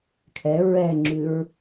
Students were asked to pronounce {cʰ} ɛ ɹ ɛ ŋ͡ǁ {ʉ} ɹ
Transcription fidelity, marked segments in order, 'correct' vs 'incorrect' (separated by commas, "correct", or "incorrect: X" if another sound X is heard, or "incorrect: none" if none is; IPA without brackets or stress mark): incorrect: kʰ, correct